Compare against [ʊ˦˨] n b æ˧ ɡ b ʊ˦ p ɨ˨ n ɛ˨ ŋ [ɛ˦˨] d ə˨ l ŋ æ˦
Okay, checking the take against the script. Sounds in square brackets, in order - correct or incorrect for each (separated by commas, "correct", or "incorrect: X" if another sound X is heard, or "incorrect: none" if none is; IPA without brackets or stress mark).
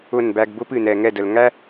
correct, correct